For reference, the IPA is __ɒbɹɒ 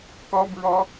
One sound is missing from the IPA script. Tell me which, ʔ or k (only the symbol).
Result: k